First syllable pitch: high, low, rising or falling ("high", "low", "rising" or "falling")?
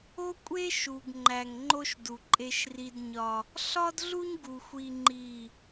high